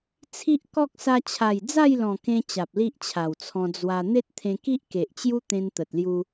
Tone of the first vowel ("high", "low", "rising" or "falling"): high